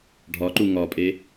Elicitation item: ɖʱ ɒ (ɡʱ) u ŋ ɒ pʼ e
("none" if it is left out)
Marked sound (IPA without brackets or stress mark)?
ǃ